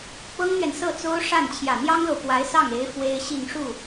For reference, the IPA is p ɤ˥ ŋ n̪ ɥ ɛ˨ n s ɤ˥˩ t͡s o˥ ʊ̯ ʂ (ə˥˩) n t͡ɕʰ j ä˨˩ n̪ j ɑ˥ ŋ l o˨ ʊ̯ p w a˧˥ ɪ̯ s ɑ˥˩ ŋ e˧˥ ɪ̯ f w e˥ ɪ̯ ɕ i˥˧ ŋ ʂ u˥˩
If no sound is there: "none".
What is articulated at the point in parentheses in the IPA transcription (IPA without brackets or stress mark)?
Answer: a˥˩